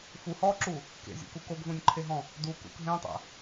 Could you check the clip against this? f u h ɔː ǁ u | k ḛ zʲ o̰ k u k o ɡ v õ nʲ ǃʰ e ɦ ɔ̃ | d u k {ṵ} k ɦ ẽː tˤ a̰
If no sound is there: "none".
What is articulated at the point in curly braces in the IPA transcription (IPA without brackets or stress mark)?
ṵ